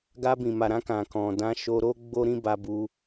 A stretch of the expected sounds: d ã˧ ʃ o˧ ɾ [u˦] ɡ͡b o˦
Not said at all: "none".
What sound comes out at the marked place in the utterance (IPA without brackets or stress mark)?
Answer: o˦